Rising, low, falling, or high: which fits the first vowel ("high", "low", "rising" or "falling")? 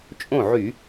falling